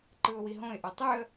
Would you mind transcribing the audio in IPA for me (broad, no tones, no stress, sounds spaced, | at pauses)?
ǃ ɯ ʊ̯ w i ɦ õ ɪ̯ ʔ o tˤ y ə̯